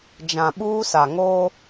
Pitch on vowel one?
low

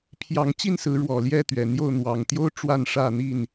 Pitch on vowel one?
rising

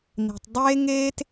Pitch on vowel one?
low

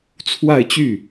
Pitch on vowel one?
falling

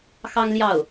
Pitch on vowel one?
high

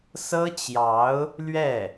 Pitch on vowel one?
high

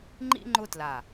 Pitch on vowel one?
high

